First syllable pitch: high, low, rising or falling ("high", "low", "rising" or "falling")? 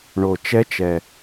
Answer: low